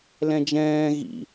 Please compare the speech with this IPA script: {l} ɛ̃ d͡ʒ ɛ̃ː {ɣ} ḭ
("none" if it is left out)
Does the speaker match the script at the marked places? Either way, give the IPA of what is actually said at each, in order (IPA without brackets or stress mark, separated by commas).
l, ɣ